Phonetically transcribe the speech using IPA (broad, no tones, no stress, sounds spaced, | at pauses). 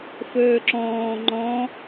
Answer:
f ɵː ǁ ɔ̃ː ŋ͡ǃ ɔ̃